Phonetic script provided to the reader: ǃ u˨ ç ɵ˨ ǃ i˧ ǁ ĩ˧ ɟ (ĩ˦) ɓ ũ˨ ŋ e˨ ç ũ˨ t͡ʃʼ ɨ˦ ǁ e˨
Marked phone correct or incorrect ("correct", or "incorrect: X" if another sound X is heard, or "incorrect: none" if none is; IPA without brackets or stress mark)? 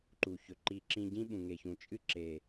correct